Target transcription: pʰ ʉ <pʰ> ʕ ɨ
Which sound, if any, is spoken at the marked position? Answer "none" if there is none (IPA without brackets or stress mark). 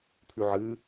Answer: none